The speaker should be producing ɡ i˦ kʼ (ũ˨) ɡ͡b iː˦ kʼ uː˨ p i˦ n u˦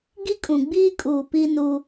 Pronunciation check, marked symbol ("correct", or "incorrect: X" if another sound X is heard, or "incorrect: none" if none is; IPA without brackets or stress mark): correct